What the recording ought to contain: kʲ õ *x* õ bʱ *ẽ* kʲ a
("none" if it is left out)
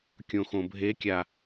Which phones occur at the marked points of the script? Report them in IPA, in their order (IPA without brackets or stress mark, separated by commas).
x, e